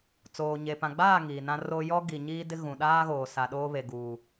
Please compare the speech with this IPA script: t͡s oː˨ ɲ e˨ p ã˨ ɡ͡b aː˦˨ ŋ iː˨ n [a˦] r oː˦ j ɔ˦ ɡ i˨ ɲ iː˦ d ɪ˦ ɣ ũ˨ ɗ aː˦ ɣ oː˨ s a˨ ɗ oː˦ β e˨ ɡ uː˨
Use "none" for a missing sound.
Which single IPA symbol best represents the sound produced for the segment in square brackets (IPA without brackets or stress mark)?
ã˦